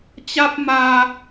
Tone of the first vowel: high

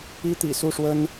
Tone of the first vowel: high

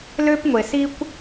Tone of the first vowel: high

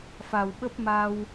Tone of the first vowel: low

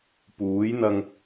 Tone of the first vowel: rising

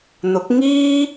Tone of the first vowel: rising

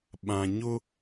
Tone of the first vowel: low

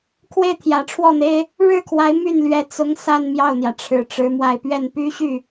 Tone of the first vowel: falling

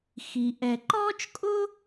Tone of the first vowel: low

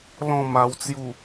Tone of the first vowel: falling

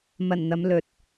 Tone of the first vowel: low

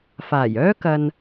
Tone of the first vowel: low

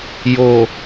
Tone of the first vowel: low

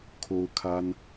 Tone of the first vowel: high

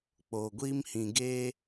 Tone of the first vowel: low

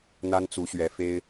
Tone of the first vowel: high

